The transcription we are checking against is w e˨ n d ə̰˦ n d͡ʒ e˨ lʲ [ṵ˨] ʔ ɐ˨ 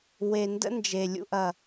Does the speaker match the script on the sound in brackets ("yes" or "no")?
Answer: yes